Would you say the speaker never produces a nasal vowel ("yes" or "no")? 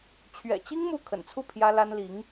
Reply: yes